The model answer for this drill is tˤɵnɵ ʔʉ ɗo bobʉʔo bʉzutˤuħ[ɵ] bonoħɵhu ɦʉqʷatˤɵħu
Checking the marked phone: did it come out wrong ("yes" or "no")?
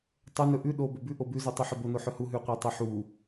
no